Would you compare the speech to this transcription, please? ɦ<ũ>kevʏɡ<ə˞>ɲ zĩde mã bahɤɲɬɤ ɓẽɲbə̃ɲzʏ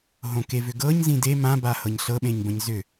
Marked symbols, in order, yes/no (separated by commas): no, no